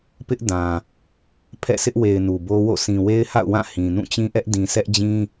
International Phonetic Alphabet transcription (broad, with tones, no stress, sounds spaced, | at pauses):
p ɪ˦ ʔ d ã˨ | pʰ ɛ̰˦˨ s ɪ˦ ʔ w e˨ ɪ̯ n u˨ b o˦ w o̰˦˨ sʰ ĩ˨ w e˦ ɪ̯ h a̰˦˨ ʊ̯ w ã˦˨ h ĩ˨ n ũ˦˨ t͡ɕ ĩ˦ ʔ ɛ˦ ʔ d ĩ˨ s ɛ˦ ʔ d͡ʑ ĩ˦